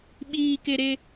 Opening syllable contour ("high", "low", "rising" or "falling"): high